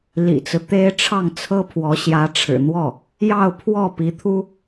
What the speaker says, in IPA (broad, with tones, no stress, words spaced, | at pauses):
lḭ˨˩t͡sɹ̩˦ t̪e˥ɪ̯ʈ͡ʂʰɑ˥˩ŋ t͡sʰɤ˥pʰwɔ˧˥ ɕjä˧˥ʈ͡ʂʰɻ̩˨˩n̪wɔ˥˩ | jɑ˥˧ʊ̯pʰwɔ˥˩ pi˧˥t̪ʰu˥